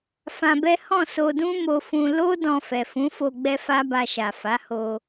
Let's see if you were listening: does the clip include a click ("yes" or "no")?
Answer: no